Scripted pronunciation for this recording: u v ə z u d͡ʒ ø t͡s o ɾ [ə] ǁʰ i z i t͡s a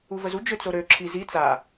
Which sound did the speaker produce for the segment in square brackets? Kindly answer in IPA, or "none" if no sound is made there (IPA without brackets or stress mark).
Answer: ø